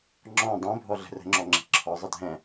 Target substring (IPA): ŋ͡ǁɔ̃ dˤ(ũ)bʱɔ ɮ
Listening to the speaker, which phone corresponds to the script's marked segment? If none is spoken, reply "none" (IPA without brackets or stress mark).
õ